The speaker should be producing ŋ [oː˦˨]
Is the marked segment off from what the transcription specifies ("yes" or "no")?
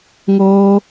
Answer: yes